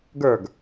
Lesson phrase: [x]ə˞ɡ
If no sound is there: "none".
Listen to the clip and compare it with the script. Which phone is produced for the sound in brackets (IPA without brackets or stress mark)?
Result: ɡ